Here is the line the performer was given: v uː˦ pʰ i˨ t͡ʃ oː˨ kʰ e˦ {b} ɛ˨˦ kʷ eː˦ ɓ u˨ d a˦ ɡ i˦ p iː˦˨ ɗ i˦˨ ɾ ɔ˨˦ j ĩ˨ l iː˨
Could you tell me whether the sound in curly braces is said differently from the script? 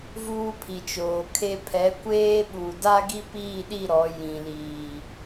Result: yes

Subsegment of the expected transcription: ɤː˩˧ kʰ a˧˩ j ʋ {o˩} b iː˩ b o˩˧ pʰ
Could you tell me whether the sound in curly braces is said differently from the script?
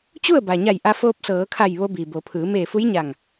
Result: yes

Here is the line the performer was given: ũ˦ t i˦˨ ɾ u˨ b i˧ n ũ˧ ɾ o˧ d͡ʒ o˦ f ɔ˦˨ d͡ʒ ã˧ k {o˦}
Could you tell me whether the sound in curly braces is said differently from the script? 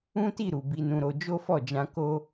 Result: no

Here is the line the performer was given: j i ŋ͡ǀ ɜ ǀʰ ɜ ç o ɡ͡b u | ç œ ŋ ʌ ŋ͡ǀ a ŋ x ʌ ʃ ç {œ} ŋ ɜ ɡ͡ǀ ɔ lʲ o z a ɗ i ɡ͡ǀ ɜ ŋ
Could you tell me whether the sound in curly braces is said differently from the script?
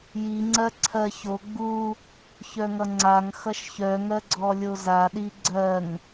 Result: no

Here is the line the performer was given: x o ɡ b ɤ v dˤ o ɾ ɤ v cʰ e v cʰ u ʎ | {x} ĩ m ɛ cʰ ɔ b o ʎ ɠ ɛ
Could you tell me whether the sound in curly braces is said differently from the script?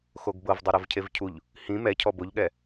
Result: yes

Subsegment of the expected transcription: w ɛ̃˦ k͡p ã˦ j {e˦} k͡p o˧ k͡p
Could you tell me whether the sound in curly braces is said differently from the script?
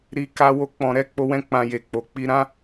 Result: yes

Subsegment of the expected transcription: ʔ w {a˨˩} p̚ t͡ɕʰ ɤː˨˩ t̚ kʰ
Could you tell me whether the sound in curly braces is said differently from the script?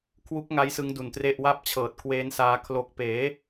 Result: yes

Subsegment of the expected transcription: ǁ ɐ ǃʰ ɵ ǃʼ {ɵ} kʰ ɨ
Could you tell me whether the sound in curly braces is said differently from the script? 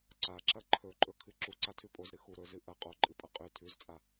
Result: no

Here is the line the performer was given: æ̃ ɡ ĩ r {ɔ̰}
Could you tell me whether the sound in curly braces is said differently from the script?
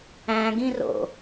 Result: yes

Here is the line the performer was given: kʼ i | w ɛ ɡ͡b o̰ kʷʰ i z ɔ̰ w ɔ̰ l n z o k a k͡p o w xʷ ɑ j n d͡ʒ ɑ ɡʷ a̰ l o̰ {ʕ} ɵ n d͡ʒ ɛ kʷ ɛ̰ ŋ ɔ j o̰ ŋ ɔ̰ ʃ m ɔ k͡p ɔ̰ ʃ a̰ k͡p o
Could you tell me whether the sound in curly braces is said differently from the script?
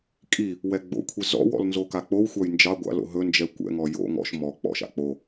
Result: yes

